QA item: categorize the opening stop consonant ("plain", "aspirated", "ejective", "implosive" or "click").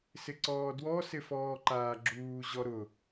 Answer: click